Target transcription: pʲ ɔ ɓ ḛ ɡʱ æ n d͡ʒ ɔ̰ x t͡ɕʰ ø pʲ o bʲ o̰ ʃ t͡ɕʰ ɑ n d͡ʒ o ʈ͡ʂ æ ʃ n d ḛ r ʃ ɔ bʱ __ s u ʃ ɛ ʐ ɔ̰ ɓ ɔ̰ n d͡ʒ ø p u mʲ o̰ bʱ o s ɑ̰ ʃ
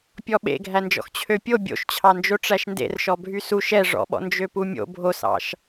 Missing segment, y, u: y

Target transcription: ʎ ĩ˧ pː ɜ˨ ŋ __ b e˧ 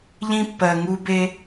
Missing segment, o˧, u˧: u˧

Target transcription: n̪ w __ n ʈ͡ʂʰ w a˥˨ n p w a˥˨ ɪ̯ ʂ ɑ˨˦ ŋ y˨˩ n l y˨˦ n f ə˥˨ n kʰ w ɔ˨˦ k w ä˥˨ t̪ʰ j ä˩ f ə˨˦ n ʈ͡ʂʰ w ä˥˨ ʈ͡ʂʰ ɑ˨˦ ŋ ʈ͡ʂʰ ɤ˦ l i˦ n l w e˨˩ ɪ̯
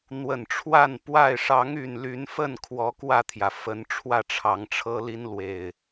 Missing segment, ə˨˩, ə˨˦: ə˨˩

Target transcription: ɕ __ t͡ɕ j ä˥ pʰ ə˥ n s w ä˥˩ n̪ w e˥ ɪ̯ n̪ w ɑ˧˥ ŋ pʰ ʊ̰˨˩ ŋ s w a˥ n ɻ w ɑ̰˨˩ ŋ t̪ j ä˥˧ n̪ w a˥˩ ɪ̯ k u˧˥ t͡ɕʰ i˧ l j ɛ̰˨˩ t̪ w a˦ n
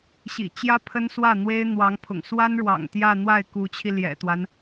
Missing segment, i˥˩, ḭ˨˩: ḭ˨˩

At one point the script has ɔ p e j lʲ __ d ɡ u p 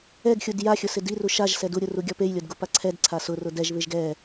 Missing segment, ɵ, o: o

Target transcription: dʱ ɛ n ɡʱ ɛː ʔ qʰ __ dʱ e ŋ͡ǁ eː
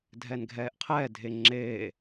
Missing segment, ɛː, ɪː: ɛː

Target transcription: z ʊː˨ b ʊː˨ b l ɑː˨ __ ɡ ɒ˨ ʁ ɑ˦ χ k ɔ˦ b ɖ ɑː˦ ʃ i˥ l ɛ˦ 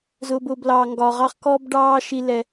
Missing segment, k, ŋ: ŋ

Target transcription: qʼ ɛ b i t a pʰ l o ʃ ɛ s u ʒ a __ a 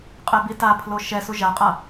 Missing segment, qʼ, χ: qʼ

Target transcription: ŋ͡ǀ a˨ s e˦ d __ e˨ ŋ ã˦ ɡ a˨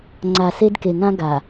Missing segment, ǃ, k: k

